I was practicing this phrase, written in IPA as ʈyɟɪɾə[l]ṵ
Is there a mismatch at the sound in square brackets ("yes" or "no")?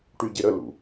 no